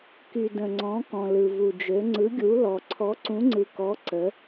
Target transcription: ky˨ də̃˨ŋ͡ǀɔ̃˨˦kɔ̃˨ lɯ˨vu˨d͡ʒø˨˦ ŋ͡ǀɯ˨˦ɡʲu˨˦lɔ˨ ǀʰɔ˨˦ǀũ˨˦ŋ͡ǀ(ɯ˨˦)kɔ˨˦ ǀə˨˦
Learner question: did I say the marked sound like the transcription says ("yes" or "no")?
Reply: no